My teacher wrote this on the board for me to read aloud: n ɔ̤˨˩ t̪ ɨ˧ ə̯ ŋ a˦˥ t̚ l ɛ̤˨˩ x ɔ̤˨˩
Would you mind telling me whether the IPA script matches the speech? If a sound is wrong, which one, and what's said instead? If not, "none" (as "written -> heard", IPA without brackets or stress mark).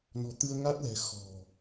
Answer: none